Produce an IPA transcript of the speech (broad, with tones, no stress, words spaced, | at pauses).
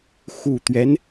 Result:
xu˨˩t̪ɥɛ˦n